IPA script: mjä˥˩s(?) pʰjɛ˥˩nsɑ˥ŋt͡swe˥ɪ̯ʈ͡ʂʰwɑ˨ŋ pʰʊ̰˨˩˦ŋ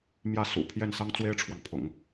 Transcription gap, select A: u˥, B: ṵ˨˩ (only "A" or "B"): B